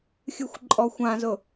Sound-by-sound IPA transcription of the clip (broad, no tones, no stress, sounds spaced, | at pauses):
xʲ ɨ xʷ ǃʼ ɔ xʷ ã z ʊ